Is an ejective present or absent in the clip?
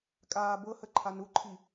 present